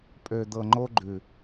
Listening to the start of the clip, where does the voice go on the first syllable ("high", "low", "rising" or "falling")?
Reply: low